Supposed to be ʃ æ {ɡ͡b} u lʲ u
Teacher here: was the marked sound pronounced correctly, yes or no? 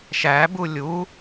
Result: no